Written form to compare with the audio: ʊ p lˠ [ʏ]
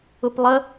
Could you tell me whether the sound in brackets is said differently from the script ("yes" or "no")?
yes